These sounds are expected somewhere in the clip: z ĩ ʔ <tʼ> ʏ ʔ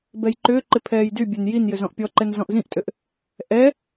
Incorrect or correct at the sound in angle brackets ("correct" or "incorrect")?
correct